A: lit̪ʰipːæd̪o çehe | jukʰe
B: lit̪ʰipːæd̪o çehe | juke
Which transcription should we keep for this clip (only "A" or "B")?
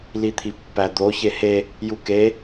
B